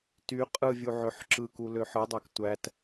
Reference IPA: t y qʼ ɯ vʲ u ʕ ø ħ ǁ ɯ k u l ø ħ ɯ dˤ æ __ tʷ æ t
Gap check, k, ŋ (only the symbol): k